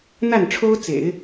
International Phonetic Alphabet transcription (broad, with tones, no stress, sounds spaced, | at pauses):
n̪ a˥˩ n ʈ͡ʂʰ o˥ ʊ̯ t͡s ḛ˨˩˦ ɪ̯